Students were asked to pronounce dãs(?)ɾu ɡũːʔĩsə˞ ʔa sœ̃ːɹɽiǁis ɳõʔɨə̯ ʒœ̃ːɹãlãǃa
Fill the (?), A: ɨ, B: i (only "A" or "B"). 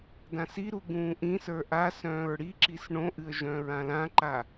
B